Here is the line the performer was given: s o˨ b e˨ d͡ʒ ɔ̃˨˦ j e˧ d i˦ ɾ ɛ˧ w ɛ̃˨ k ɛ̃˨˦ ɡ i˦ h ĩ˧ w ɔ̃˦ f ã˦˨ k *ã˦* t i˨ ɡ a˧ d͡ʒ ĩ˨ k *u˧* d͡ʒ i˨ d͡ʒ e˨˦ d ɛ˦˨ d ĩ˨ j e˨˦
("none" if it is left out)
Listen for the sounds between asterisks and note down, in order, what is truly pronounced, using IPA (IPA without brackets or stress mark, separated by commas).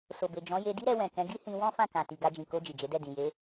ã˨, o˧